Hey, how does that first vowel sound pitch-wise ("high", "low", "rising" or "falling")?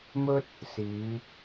high